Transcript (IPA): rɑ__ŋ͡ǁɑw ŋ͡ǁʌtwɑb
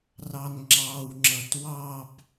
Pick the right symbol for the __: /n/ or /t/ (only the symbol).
n